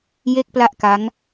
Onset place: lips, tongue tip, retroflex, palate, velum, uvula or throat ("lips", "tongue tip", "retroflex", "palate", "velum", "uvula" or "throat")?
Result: palate